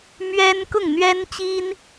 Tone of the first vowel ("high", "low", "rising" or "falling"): high